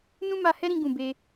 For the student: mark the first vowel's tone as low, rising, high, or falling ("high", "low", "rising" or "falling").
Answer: high